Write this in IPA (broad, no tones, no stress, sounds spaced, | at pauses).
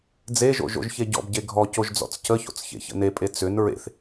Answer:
d͡z e ʒ o̰ ʒ o̰ ʒ ç e ɟ ɔ̰ b ɟ e ɡʱ ɔ c o ʒ d͡z ɔ̰ t͡s c ə ç o̰ t͡s ç ḛ ç ə̰ n e pʼ e t͡s ʏ n ɹ ḛ θ